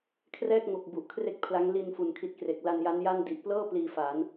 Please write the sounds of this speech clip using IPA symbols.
kʰrɛː˥˩k̚ŋo˨˩k̚ bu˨˩ʔkʰre˥˩k̚pʰla˦˥ŋ li˧n fu˨˩nkʰi˦˥t̚ kre˨˩k̚ la˧nja˦˥n ja˥˩n di˨˩ʔplɤː˥˩ pliː˧fa˩˦n

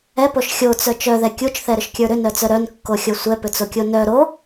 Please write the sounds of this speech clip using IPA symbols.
ɛpoʃ xʲot͡sœ t͡ʃœðɛ kʲut͡ʃθɛɾʏʃkʲə˞ ɾʏnœt͡sœ ɾœnkːoxʲo sʷɛpʏt͡sokʲo nœ ɾo

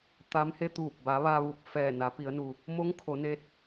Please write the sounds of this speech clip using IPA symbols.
t̪a˧˥m he˧t̪uː˧˩p̚ ba˩˧ ʋa˧ʋu˧˩p̚ fɛː˧˩na˩˧pi˩˧ə̯nu˩ | mo˧˥ŋ kʰo˩˧ne˧˥t̚

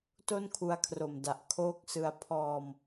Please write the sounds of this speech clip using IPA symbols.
to˥˩nkʰu˧a̯kʰro˨˩mda˨˩ʔ kʰoː˦˥k̚sɯ˧a̯ pʰɔː˧m

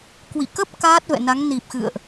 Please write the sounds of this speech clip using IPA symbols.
kwḭ˧˨kə˦˥p̚ kaː˦˥t̚vɛ̰˧˨na˨˦ŋ ni˨˩p̚xɨ̰˧˨ə̯ʔ

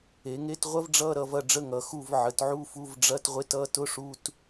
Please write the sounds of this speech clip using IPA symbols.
e˩˧ŋe˧˥˧tʁʷɐ˥vɖ͡ʐʌ˧˥˧ ɾʌ˩˧vɐ˦˨ɖ͡ʐə˧˥˧ ŋʌ˩˧ xu˦˨v ʕə˩˧t ʕu˧˥˧fu˧˥˧v ɖ͡ʐɐ˧˥˧t ʁʷe˥t ʌ˥ tʊ˧˥˧ʂu˧˥˧t

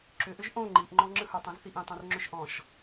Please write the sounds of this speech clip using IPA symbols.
ǁʏʔʏʒ ʔõ ŋ͡ǃiʔŋ͡ǃɔ̃ ŋ͡ǁɯhə˞tˤõz θiʔĩtˤõrŋ͡ǁʏʃ ʔɔ̃ʃ

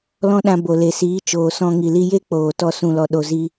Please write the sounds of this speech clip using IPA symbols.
lɔ̃˦ɗã˧ bo˨le˨siː˨˦t͡ʃoː˨ sɔ̃˧ ŋi˨li˧je˦ k͡poː˨tɔ˧ sũ˨lɔ˨ ɗo˨zi˧

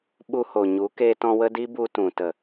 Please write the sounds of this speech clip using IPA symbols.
ɓu˧ho˨ɲu˨˦ keː˧tɔ̃˧ wə˦ di˦bu˧tũ˨ tə˨

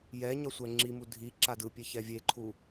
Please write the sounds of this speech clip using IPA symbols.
jɛɲʌ sʷɛŋ͡ǁimu dʱi ǁadɯpʲe çɛvʲeǃʰu

